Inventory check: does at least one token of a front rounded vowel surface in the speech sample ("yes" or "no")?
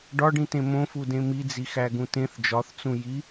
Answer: no